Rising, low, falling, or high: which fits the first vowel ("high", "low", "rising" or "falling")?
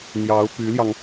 rising